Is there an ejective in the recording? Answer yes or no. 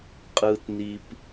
yes